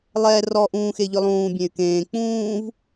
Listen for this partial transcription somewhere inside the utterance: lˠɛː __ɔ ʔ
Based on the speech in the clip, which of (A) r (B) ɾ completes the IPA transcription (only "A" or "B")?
A